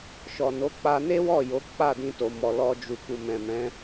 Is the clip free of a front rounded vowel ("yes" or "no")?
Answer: yes